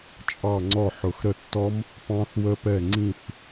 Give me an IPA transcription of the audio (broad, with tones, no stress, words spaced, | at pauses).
t͡ʃʼɑ˦˨ŋ͡ǀɔ˦˨ ħʊ˨˩xɾə˦˨tːɔ˦˥m | pɑ̃˦˥θwə˦˥pɛ˦˨ ŋ͡ǀĩ˦˨θ